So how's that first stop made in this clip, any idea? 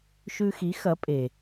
ejective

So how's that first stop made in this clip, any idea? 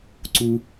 click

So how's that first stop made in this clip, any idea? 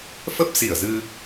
plain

